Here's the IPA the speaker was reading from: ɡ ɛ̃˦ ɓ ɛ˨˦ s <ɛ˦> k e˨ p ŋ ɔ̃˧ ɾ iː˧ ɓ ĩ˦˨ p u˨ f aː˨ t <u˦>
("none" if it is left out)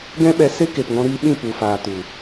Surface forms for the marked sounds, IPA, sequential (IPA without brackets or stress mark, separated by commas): e˦, u˨